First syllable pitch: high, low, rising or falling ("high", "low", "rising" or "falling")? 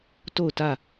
falling